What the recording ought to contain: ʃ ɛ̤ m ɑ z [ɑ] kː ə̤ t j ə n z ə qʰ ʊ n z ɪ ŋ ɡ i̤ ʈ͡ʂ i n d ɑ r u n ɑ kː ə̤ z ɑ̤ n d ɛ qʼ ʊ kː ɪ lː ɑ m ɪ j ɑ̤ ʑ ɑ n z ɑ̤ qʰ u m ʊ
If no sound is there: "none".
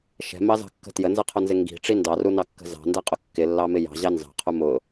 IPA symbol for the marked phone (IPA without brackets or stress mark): ɑ̤